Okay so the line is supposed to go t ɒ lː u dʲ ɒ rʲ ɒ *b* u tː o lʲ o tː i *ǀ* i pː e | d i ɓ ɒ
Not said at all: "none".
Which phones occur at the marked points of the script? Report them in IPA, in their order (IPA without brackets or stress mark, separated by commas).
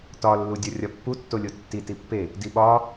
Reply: pː, t